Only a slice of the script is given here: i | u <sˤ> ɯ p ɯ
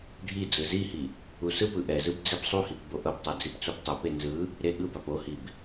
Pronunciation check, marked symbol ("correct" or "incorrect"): incorrect